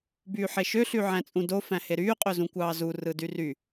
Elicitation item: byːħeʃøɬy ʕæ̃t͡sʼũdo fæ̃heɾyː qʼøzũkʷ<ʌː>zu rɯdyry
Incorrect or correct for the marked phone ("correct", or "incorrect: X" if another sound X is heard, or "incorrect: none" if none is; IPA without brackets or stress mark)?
incorrect: ɑː